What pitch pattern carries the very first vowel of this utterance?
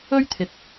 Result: high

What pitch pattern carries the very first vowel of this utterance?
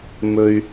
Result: high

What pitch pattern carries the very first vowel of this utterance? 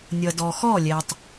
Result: low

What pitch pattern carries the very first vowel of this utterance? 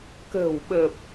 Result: low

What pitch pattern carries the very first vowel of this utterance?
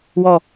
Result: falling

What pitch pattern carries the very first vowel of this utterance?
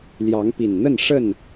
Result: rising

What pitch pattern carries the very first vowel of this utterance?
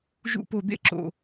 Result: falling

